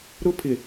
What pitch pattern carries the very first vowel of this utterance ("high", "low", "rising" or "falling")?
high